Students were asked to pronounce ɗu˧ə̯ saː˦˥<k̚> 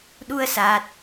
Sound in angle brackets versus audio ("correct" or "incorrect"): incorrect